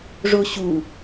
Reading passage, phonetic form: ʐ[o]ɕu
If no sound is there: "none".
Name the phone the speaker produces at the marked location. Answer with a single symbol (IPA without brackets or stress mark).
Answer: o